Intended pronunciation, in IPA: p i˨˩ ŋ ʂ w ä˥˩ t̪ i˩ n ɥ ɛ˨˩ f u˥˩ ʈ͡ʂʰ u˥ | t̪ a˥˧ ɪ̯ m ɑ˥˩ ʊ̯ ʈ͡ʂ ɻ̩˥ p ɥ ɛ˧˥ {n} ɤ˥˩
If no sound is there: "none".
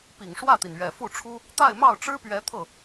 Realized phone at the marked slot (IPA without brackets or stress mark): t̪ʰ